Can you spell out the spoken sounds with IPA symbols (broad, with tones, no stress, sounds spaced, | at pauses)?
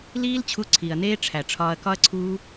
l iː˦ l t͡ɕʰ u˧ ǀʰ i˨ ɐ̯ n eː˦ ʈ͡ʂʰ æ˨ ʈ͡ʂʰ ɒː˧ ɐ̯ k ɒ˦ ɐ̯ ǀʰ uː˦